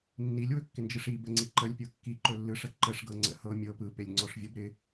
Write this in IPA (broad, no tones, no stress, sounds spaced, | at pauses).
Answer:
nː i lʲ w ɵ kː ɪ n d͡ʒ ɯ ʂ i b ə ŋ͡ǀ i ǃ ə lʲ pʲ ɤ kː i ǃ ɵ lː ɯ ʂ ə ǃ ə ʂ ɡ ɤ ŋ͡ǀ ə̰ h ɤ mʲ ɤ p ɯ p e lʲ ŋ͡ǀ ɔ ʂ vʲ ɤ b ɾ ɪ